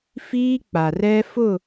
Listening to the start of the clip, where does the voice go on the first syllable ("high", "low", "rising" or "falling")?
high